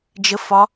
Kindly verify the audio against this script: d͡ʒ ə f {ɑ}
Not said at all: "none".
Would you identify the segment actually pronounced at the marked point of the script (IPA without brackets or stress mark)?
ɒ